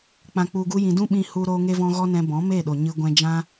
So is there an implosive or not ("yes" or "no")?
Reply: yes